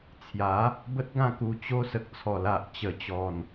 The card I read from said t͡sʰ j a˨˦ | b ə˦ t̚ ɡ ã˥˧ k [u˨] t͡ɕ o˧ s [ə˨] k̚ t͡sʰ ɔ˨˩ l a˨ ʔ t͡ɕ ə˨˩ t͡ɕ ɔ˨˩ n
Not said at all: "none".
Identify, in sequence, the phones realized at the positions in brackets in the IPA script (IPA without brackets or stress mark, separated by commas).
u˧, ə˨